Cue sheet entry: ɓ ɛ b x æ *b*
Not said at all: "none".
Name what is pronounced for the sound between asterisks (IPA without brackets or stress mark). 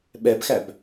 b